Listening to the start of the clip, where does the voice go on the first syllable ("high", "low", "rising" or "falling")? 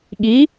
rising